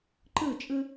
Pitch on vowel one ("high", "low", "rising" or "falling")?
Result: falling